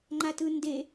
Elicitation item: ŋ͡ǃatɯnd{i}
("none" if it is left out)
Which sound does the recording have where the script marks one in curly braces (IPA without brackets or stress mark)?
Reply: e